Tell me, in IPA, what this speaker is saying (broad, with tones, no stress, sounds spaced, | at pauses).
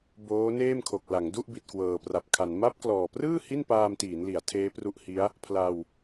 b oː˦˥ n eː˥˩ m kʰ o˨˩ k̚ l a˩˦ ŋ d u˥˩ ʔ b i˨˩ t̚ k w ɤː˨˩ p r a˨˩ p̚ kʰ a˩˦ n m a˦˥ p̚ k l ɔː˨˩ p r ɯː˥˩ h i˥˩ n p aː˧ m t iː˩˦ n l i˩˦ a̯ tʰ eː˦˥ p r u˦˥ ʔ h i˦˥ a̯ | pʰ l a˧ w